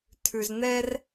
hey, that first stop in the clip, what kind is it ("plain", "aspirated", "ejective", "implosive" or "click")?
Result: aspirated